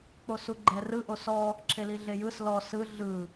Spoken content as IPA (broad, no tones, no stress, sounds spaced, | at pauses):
k͡p o s u ɡ͡ǃ ɛ r ɯ ʔ o s ɔ | ǁʰ e l i ɮ e j ɯ s l ɔ s ɯ ɮ ɯ